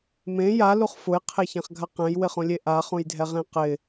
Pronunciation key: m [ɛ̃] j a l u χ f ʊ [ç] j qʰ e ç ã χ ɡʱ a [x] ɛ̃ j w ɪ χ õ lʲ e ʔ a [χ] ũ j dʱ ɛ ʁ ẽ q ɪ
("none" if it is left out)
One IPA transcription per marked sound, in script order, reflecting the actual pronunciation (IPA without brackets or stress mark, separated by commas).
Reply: ẽ, none, q, χ